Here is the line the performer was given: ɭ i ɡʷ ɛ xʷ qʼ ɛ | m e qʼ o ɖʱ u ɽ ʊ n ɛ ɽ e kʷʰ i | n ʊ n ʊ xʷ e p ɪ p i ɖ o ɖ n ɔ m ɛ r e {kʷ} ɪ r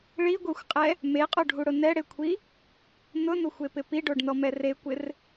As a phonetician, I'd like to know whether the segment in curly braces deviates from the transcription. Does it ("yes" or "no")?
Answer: no